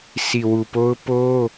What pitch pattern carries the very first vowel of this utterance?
low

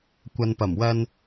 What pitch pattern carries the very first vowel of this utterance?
low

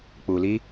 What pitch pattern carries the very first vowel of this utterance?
low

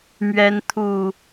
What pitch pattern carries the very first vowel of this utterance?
high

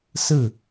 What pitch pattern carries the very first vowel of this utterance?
falling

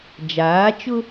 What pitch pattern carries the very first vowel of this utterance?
rising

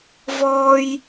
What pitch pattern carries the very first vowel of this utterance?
high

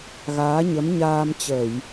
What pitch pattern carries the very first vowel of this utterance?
rising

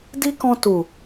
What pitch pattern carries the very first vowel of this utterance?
high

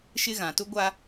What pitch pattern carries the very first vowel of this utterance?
high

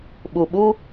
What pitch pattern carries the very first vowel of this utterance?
low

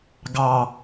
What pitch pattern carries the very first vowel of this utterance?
low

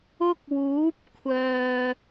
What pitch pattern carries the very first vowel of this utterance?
high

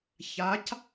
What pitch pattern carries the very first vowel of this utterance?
rising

